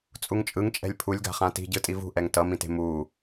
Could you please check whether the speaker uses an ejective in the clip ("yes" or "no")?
yes